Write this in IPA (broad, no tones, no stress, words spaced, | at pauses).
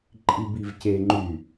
ǃʼibivceŋ͡ǃy